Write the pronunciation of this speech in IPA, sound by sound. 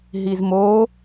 ɦ i z m o

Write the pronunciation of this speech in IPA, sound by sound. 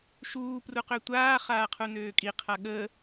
ʃ uː p r u q ø tʷ aː χ aː qʰ u n øː kʼ i qʰ a ɠ ə

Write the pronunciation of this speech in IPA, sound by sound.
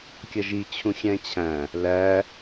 kʲ ʌ ʒ i t͡ɕʰ ũ xʲ æ̃ t͡ɕʰ æ̃ | l æ

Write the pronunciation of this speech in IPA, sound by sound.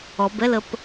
ɔ b ɛ l ə p

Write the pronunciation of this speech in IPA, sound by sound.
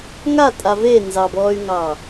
ŋ a tʼ a v e n z ɑ b ɔː y̯ ŋ ɑː

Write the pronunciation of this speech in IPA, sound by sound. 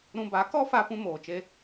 ɾ ũ˧ b a˨˦ k ɔ˦ f a˧ p ũ˦ m oː˨ t͡ʃ e˦

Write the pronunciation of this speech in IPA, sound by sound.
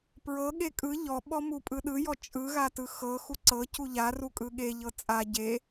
p ɹ ɤ ɠ e kʼ ɯ ʎ ɔ ɓ ɔ m u pʼ ɯ ɗ ɯ j ɔ t͡ʃʼ ɯ ɣ a t ɯ x ɤ x u ǀ ɤ c u ʎ a r u kʼ ɯ ɠ e ʎ ɤ t͡sʼ a ɟ e

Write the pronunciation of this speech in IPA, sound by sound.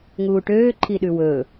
ŋ uː ʈ øː ǃʰ i ɗ ʉ w ɵː

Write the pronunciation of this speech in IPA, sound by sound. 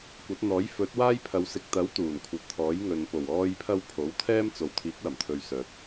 kʷ ɐ˨˥ t̚ n̪ ɔː˨˥ j f ɵ˨˥ t̚ w aː˥ j pʰ ɐ˨˧ w s ɪ˨ k̚ t̪ ɐ˨˥ w t̪ uː˨˩ n kʷʰ ɐ˨ t̚ t̪ʰ ɔː˨˥ j ŋ ɵ˨ n p o˨˩ w ɔː˧ j pʰ ɐ˧ w pʰ o˨˥ w t̪ʰ ɛː˥ m t͡s o˨ w t̪ʰ iː˨˥ k̚ w ɐ˨˩ m t̪ʰ ɵ˨ ɥ s œː˨ t̚

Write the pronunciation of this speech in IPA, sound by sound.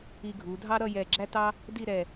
i˧ ɡʱ u˩˧ dʱ ɑ˥ ɾ ʌ˥˧ j ɛ˧˩ ɡ͡ǁ æ˥ t ɑ˥ | d i˥˧ ɾ ɛ˧˩

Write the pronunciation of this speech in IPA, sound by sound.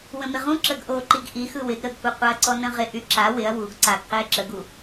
w ə̃ m ɪ ʁ ũ ǁ ə ɡ ʔ o ǃ i ɡ ʔ i x ɯ w ɪ ɡ ɾ ə ɡ kʷ ɯ qʷ a ɐ̯ ǀ ɔ n ə̃ ʁ ɪ ʔ y ǁ a w ɪ ɐ̯ w u ɡ ǀ a ɡ q ɪː ǁ ə ɡ u

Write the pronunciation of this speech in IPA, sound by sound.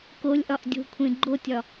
k o lʲ ʔ ɒ ʔ dʲ o̤ kʷʰ ẽ ɡ͡ǃ o tʲ ɒ

